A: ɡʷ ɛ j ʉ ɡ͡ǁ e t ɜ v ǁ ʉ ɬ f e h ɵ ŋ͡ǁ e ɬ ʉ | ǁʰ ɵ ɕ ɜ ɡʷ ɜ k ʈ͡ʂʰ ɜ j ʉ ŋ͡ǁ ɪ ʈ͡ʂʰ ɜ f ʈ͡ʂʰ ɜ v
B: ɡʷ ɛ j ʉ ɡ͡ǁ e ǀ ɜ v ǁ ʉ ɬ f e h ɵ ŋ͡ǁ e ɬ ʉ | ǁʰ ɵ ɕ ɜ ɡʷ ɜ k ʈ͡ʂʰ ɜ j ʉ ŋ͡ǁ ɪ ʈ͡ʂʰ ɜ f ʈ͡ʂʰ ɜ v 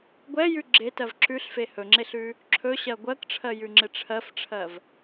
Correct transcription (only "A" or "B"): A